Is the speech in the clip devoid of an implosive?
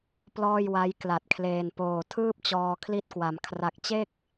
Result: yes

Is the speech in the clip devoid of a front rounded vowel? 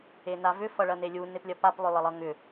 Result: no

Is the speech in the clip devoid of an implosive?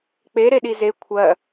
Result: no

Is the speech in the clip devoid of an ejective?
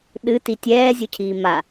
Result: yes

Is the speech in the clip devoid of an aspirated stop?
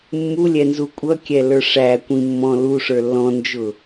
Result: yes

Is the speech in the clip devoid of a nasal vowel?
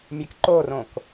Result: no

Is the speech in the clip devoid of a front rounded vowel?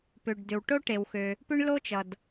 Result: no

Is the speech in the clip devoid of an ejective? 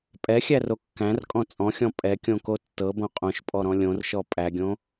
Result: no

